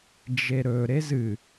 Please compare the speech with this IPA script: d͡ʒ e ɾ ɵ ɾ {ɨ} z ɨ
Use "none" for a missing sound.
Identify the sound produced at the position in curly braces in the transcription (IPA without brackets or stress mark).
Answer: e